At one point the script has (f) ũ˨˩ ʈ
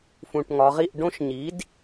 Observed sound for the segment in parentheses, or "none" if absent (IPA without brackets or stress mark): f